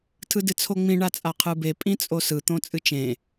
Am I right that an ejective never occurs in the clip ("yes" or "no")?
no